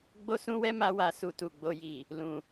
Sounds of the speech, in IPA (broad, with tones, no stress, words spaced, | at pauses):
ɡ͡bo˦sũ˦wɛ˦ ma˦wa˧ su˧tu˨ɡ͡bo˧ji˨ | lũ˨